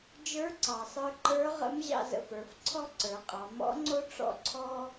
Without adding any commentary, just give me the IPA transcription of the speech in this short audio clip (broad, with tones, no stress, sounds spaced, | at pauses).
d͡ʒ ə˞˧˥ ǀ ɑ˩ sˤ ə˞˧ ǃ ə˞˧˥ ʁ ə̰˧˥ m ʑ ɑ̰˧ z ə̰˩˧ f ə˞˩˧ f ǀʰ ɔ˥ ǀ ə˞˩˧ qʼ ɑ˩˧ m ɔ̰˧˥ ŋ͡ǀ o˥ ʈ͡ʂ ɔ̰˥ ǀʰ ɔ˥